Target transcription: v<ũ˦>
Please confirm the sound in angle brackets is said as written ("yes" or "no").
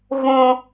yes